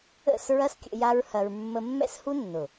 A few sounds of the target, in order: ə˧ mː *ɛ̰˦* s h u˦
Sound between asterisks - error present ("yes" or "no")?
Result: no